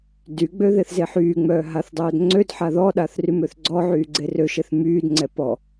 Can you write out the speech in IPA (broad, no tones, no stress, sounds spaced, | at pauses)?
d y ɡ͡b ø ð e θ z e ħ yː ŋ͡m œː ɦ a θ dˤ œː d ŋ͡ǀ ø d ħ a ð ɔ ɗ a θ r y m ø θ ɡ͡ǀ ɔ ʕ yː ɡ͡ǀ e r ø ʃ e θ m yː d ŋ͡ǀ ɛ p ɔ